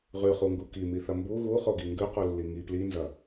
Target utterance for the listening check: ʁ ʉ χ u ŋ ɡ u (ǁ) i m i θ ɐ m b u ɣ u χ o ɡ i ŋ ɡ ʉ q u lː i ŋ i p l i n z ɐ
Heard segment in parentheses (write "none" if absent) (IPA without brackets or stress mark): k